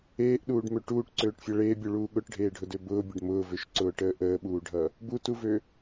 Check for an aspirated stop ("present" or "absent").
absent